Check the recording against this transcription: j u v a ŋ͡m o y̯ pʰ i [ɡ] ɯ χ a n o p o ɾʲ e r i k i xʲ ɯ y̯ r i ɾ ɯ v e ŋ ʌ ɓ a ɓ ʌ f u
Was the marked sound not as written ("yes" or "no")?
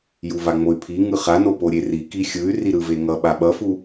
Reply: yes